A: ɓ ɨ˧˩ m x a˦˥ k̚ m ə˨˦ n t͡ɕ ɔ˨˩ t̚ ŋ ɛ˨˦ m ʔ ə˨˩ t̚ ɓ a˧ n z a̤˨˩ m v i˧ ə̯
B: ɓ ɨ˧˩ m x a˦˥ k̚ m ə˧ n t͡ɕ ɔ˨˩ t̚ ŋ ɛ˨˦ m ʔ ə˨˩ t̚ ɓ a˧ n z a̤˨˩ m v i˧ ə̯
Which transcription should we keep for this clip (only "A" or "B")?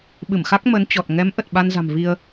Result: A